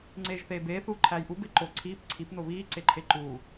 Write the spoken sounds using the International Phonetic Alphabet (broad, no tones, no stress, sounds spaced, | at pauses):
ŋ͡ǀ eː ʒ θ eː b eː θ uː ǃʰ æː j ʔ u b e ǃ o ǀʰ iː p ǀʰ i p n o β iː ǀ e ǃʰ e ǃ uː